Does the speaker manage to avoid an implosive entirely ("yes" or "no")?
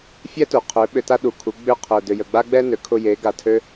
no